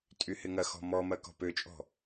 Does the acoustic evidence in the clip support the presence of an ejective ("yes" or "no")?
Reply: yes